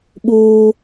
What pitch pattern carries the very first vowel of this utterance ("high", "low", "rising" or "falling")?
high